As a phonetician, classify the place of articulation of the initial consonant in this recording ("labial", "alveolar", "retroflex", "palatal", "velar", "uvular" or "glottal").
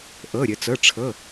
glottal